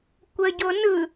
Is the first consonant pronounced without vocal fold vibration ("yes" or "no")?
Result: yes